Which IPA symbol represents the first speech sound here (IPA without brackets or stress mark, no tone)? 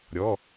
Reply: ɾʲ